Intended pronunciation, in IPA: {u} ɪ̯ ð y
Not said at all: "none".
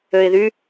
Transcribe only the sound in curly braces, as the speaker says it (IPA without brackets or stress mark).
ø